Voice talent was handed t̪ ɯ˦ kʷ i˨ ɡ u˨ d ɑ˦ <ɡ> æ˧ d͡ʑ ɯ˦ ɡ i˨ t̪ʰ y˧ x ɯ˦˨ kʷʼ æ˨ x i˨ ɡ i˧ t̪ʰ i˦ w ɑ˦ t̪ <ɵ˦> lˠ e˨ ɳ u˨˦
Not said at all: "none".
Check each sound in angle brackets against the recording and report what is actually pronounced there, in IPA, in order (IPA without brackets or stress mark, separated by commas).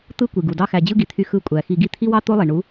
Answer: x, o˦